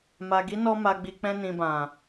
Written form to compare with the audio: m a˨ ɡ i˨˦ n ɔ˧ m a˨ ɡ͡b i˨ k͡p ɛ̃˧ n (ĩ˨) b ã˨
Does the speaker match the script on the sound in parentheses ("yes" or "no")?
yes